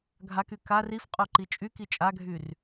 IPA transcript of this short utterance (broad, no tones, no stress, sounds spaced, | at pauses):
ɡʱ a k y k a r i f qʼ o ǃ i t͡ʃʼ y k i t͡ʃʼ a ɡʱ y r